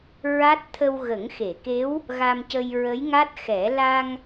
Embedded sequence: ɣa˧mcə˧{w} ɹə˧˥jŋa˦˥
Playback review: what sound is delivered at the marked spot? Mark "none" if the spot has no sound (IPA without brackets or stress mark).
j